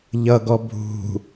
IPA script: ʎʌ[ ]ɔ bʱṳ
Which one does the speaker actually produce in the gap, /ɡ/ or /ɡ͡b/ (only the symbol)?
ɡ